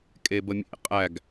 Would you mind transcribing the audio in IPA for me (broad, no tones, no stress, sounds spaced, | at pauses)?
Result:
kʼ e b ə mʲ ḛ qʼ æ ɡ